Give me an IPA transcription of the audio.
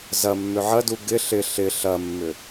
zɐ mːʏʕɐdu ɡɪ ɬɪ ɬɪ ɬɐmːʏ

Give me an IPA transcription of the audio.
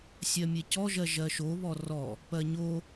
sʲɜmʲecɔʒɜ ʒɜʃoβɔ rɔ | pɜɲo

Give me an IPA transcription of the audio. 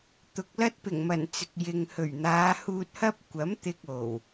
t̪ʊ˨k̚lɐ˥t̚ pɪ˨˩ŋmɐ˨˩n t͡sɪ˨k̚jɪ˨ŋ hɵ˨˩ɥn̪aː˨˧huː˧t̚hɐ˥p̚ kʷɐ˨˥m t̪ɪ˧k̚ o˨˩w

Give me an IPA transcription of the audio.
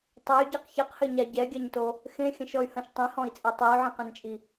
tˤɛy̯ɟeq çɘqhɘɲa ɟɛɡʲaɲto | xẽxʲɐ̃ʃɔy̯hɐ̃ʃ tˤẽhɔ̃i̯t͡sʼe tˤey̯ʕẽqɛ̃nt͡ʃʼi

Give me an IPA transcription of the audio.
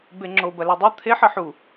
beŋ͡ǁob ɐlɛdˤo t̪ʰeħ ɐħu

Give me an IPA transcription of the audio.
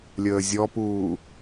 lʲəːzʲɔpuː

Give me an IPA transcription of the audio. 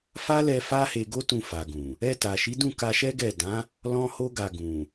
fa˦lɛ˧ fa˦he˧ɡo˦tũ˧ fa˨ɡũ˨ | ɛ˧ta˨ʃi˨˦ dũ˦˨ ka˧ʃɛ˦ɡɛ˦˨ dã˨˦ | lɔ̃˦ ho˦ɡa˧ ɡũ˨

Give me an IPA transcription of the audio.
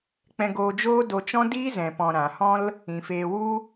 k͡pɛ̃˧ɡoː˧d͡ʒoː˦ do˧t͡ʃɔ̃˦ diː˦zɛ̃˨pɔ̃˨ ɾã˨hɔ̃˦l | ĩ˨feː˧ wu˦

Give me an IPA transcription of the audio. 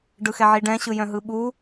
ɖɯxɛʕiɖɛ̃ ɕɯjœ̃ɦɯɓu

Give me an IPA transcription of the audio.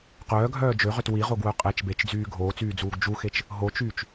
qœːɡʱœː d͡ʒøʁøt wiʁoɡ wœqʼɛt͡ʃ bet͡ʃd͡zyː ɡʱoːt͡syːd͡zuːɡ d͡ʒuxet͡ʃ | ɦot͡ʃyːt͡ʃ

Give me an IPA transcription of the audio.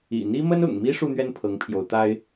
ḭ˨˩n̪i˥ mə˥nʊ̰˨˩ŋ mi˥ ʂu˥˧n̪ɥɛ˥˩n pʰɤ˧˥ŋpʰjo˧˥ʊ̯t̪a˥ɪ̯

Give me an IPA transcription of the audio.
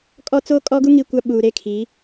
kʼɔ˦t͡so˦kʼɔ˦ɡu˦ ŋi˦kʷa˦ ɓuː˨ɾe˦˨kʰi˨˦

